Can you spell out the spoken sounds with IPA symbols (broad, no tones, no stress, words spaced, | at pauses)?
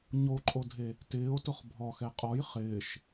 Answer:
ɲoǃʼodʱe | tɪːo̯tʊχ bʱɔxɛ qʼɔj χɪːʃ